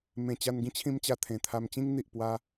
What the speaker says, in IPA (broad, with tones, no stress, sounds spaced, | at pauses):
m ẽ˨˩ t͡ɕ a˧ n ɡ ĩ˦ t͡ɕʰ ĩ˦ m t͡ɕ a˧ t̪ʰ ẽ˨˩ t̪ʰ a˧ m t͡ɕ ĩ˦ ŋ n̪ i˨ ʔ p w a˧